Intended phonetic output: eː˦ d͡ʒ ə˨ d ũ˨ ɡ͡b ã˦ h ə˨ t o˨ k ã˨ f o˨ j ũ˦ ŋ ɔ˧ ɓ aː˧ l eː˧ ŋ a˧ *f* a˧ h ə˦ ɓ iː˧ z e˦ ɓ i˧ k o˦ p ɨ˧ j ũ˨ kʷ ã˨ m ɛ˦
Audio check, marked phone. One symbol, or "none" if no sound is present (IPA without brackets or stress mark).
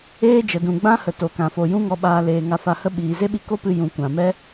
f